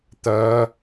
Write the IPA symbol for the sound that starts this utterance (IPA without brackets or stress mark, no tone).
t̪